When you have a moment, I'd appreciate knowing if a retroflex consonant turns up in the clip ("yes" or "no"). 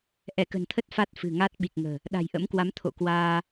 no